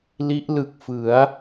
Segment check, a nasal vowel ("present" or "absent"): absent